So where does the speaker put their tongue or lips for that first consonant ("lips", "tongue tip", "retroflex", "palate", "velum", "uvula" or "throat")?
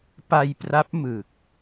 lips